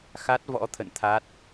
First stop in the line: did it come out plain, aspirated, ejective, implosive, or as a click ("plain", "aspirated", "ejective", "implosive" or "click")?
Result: plain